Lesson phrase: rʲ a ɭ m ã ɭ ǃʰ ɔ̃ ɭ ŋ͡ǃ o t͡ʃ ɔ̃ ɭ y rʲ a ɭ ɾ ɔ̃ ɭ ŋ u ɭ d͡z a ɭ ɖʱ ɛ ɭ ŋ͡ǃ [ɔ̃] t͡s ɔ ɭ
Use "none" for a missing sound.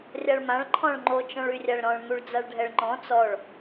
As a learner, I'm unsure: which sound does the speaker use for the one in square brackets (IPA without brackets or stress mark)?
ɔ̃